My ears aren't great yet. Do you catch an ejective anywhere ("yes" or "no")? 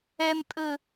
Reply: yes